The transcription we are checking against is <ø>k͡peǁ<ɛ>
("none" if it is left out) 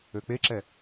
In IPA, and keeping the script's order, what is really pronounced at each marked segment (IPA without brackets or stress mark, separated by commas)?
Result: ø, ɛ